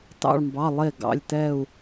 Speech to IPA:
t ɑ̰˧˩ ɭ m b ɑ˩˧˩ lˠ e˧˩ ɡ ɑ̰˩˧˩ lʲ t ɛ˧˩ u̯

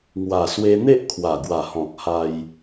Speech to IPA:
ŋ w a˨˩ s w e˧ n̪ e˦ ʔ kʰ w a˨˩ ɡ w a˨˩ h ɔ̃˨ k̚ h a˧ j

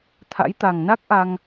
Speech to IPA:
t̪ʰ a̰˧˥ j t̪ a˨˩ ŋ n a˦˥ k̚ ʔ a˧ ŋ

